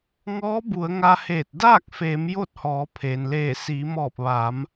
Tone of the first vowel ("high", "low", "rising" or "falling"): rising